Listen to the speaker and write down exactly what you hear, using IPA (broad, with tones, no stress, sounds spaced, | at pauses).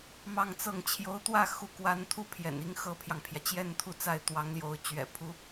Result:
m ɑ˥˧ ŋ t͡s ɤ˥˩ ŋ t͡ɕʰ j o˧˥ ʊ̯ t̪ w ä˥˧ x u˥˩ k w a˥ n t̪ʰ u˥ pʰ j ɛ̰˨˩ n i˥ ŋ x ɤ˥ pʰ j ɑ˨ ŋ pʰ j ä˩ t͡ɕ j ɛ˥˧ n t̪ʰ u˥˧ t͡s a˥˩ ɪ̯ t̪ w ɑ˧˥ ŋ l j o˧˥ ʊ̯ t͡ɕ ɥ ɛ̰˨˩ pʰ u˧˥